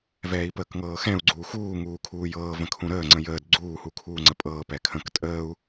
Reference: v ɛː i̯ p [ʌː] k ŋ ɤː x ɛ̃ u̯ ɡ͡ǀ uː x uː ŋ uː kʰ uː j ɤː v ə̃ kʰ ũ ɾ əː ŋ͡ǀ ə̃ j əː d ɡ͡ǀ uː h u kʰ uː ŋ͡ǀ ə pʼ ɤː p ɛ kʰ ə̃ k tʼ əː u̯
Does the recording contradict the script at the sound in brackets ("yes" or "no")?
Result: yes